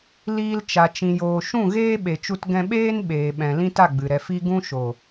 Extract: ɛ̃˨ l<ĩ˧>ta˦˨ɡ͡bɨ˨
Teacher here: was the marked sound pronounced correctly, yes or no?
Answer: no